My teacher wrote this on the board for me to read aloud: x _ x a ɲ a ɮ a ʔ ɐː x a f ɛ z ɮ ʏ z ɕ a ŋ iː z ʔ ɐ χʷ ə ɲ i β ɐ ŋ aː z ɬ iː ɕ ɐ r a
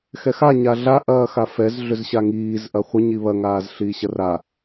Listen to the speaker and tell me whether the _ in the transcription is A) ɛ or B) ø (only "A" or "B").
A